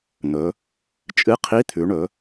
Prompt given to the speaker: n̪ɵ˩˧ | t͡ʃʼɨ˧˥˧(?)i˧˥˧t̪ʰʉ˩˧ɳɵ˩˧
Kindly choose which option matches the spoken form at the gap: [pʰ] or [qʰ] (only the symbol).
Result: qʰ